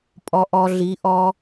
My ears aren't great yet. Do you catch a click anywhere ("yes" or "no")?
no